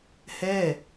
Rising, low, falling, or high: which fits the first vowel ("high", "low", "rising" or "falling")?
falling